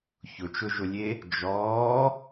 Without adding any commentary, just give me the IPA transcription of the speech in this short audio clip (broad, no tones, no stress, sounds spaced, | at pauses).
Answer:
ç ʊ t͡ʃ ʊ ʒ ʊ lʲ e | d͡ʒ ɔː